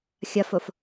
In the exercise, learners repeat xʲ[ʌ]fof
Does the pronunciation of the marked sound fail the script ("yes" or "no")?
no